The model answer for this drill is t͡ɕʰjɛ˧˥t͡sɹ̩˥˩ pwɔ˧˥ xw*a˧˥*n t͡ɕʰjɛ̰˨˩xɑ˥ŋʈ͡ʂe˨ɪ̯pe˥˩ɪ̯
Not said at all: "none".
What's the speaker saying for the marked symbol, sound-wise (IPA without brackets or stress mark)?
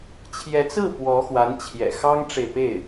a˧˥